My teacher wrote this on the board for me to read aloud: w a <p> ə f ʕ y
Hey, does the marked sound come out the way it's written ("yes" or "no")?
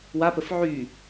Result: yes